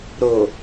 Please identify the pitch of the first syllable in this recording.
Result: low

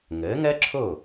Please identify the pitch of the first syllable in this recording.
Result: rising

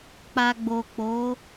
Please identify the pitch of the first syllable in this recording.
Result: low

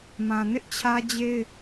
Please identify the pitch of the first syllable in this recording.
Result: low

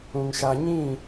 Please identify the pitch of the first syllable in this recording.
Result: low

